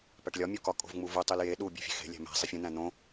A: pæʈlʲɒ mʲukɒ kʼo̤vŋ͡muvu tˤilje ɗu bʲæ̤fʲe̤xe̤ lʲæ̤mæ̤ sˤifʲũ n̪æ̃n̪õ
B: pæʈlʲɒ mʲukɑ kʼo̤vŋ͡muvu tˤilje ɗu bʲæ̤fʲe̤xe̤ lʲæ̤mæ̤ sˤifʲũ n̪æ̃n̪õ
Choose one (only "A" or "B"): A